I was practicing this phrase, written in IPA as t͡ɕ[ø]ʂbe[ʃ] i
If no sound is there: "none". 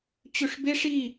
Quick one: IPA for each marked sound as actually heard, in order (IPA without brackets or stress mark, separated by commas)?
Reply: ø, ʂ